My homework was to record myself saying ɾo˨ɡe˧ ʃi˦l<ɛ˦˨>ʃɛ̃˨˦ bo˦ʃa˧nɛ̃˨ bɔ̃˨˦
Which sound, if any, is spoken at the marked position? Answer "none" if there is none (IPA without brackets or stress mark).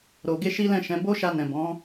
ɛ̃˦˨